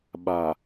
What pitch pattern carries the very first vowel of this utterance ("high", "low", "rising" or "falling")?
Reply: low